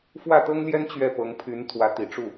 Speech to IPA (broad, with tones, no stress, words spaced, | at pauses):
fwä˥˩t̪ɤ˥ŋljɛ˥n t͡ɕɥɛ˥˩pɤ˧˥ŋpʰy˧˥n t̪ʰwä˧˥t̪i˨˩ʈ͡ʂu˥˩